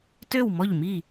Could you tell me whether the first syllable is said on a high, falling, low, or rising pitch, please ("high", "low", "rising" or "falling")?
falling